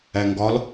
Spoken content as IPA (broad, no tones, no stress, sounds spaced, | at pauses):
æ ŋ ɡ ɒ l